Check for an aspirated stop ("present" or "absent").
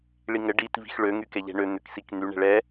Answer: absent